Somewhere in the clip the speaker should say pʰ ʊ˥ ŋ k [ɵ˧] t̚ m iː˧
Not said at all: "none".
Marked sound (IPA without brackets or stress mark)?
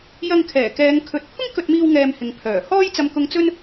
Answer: ɵ˧